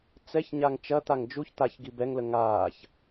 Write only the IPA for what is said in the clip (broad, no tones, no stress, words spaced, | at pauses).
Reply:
t͡sɛçɲaŋ t͡ʃɐt̪aŋ d͡ʒuç t̪açɡi bɛŋlə ŋaːç